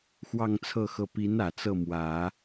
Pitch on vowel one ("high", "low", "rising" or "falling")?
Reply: falling